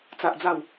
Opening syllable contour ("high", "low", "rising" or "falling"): low